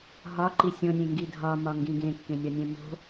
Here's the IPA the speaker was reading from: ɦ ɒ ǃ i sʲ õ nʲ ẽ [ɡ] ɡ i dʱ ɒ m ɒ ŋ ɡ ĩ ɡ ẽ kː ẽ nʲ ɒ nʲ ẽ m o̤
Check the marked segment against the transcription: incorrect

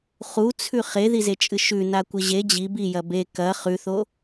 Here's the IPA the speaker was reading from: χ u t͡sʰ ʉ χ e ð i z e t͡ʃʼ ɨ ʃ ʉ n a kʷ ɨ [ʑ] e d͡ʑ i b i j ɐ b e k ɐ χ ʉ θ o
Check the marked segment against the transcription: correct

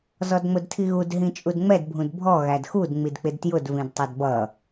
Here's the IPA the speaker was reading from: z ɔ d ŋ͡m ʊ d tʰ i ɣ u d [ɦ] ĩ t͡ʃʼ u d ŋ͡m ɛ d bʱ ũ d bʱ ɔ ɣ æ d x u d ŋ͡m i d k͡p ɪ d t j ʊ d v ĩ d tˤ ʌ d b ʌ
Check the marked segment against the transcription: correct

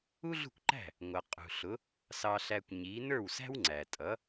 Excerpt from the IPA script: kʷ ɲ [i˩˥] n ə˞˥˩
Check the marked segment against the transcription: correct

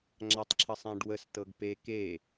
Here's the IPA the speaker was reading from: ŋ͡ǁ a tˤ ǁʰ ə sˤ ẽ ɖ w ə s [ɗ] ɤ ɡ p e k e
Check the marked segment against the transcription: incorrect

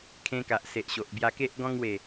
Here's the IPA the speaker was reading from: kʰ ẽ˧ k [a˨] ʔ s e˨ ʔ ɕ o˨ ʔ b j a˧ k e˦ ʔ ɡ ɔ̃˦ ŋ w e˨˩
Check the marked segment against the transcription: correct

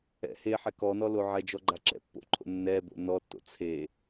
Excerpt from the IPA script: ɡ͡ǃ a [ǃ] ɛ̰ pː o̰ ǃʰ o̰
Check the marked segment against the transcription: incorrect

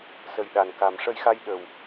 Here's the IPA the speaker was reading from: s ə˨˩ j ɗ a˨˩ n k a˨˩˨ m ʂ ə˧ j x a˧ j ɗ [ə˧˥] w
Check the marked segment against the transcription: incorrect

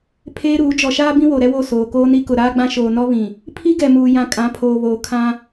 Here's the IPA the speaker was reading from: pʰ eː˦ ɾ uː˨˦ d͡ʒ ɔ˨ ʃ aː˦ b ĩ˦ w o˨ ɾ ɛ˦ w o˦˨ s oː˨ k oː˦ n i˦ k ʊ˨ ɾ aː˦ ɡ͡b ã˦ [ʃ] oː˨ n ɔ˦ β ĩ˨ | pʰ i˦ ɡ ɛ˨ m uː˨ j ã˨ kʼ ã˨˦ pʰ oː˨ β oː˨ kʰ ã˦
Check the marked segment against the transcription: correct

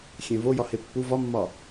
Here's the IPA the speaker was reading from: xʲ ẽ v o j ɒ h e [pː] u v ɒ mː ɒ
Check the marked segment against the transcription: correct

